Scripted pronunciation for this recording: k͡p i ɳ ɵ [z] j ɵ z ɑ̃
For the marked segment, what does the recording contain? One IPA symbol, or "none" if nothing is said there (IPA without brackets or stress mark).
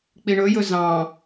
none